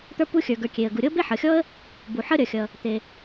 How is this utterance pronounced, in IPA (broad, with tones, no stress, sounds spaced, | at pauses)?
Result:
t̪ ə˞˥ p u˥ xʲ ə˞˩ ɡ ə˞˩ kʲ e˩ ə̯ ɡ u˩ ɾʲ ɤ˥ b e˥ ħ ʌ˩ xʲ ɔ˥ ə̯ | b u˩ ħ ʌ˥ ɾʲ ʌ˩ xʲ ʌ˩ | t̪ e˩